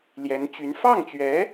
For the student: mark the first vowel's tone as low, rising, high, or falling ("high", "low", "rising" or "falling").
rising